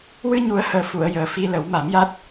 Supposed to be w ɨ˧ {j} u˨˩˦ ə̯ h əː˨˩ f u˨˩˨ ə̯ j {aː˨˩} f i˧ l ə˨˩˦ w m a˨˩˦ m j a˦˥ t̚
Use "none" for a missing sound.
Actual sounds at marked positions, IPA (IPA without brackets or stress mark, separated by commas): ɲ, əː˨˩